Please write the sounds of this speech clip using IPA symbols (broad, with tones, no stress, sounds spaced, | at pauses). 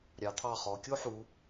ɾʲ ɑ˩˧ t̪ʰ ɑ˧˩ χ ɔ˩˧ kʲ o˥ ħ u˩˧